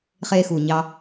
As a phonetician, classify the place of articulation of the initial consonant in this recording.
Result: uvular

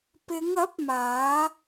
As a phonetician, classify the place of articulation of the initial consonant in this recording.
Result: labial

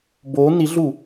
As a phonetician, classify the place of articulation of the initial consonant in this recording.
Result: labial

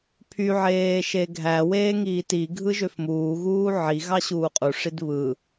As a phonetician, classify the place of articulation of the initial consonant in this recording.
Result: labial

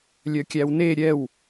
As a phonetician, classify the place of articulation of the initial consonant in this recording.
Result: alveolar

